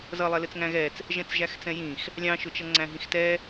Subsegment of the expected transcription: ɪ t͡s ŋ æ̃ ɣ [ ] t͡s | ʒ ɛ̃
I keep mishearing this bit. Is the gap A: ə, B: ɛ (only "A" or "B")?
B